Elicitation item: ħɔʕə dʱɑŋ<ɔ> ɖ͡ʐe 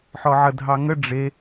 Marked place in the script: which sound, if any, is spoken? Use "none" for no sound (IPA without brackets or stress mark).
ə